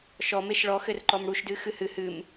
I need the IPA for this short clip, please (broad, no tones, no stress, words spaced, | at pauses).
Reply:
ʃɔ meʃɭɔ xɘrǃɔmɽuʃdɨ xɨhɨ hɨm